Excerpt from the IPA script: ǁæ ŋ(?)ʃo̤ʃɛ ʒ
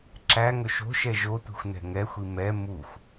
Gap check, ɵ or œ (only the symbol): ɵ